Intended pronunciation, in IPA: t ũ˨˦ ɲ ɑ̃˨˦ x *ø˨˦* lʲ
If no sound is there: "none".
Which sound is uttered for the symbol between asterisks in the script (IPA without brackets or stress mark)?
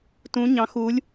u˨˦